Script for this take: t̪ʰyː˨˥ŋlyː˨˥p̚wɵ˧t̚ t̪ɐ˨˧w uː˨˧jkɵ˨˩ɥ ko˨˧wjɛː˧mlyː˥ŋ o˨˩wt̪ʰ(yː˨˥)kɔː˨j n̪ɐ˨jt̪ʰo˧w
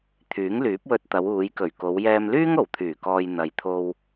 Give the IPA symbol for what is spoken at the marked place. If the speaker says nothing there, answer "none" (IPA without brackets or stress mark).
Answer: yː˨˩